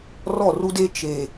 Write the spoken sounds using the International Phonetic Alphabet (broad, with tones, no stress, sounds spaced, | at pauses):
r ɔ˦˨ r u˦ d e˦ t͡ʃ e˨